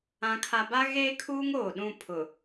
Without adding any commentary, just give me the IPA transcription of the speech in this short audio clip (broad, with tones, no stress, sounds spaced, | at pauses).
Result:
ã˦ kʰ a˦ b a˦ ɣ eː˦ kʰ uː˦ ŋ oː˨ ɗ ũ˦˨ pʰ ʊ˨